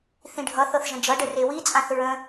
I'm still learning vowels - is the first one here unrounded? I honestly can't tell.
yes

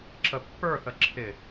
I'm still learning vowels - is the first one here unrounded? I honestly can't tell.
yes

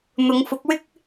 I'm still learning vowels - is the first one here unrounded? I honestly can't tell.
no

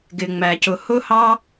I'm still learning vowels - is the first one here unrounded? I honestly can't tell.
yes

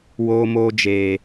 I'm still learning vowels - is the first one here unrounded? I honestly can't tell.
no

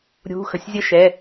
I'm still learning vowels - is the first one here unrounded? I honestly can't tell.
no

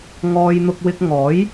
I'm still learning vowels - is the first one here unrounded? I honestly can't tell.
no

